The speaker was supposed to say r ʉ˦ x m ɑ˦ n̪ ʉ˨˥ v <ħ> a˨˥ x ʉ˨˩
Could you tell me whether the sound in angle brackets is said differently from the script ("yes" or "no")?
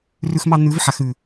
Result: no